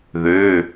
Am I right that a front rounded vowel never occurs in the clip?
no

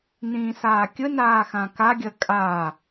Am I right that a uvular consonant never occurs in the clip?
yes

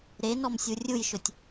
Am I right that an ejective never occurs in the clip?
yes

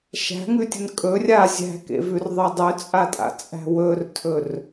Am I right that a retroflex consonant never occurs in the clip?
yes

